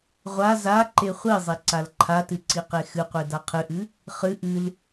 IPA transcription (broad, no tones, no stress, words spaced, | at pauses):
ʁʷa za ǃeχʷizˤi ǀalǃʰatɨ ǀiqexɨqʷe daqʰɨʔɨ | χɨ ʔɨl